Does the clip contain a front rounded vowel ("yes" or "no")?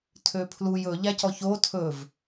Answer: yes